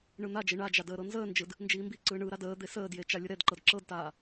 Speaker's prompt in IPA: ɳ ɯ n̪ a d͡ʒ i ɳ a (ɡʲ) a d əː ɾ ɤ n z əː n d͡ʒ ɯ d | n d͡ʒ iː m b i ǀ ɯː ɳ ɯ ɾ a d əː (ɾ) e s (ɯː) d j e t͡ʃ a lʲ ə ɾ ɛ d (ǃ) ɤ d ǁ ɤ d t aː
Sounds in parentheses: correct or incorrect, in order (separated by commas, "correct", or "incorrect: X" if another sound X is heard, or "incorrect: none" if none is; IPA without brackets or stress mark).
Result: incorrect: d͡ʒ, incorrect: d̪, incorrect: əː, correct